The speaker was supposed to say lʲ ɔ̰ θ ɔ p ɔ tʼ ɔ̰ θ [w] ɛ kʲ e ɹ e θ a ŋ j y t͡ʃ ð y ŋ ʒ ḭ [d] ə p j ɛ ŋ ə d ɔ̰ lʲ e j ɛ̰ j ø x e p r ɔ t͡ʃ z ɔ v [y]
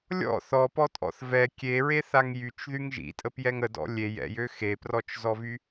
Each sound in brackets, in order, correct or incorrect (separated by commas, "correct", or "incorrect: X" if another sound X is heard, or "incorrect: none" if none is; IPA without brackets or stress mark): incorrect: v, incorrect: tʼ, correct